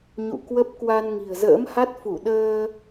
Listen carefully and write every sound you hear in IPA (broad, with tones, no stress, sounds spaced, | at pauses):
ɲ ṵ˧˨ k w ə˦˥ p̚ k w a˧ n ŋ i̤˨˩ ə̯ z ə̰ː˧˥ m h a˦˥ t̚ f u˧˩ ɗ əː˧